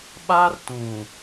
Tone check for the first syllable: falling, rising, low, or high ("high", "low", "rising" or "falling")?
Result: high